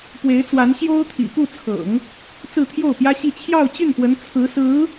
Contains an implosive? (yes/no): no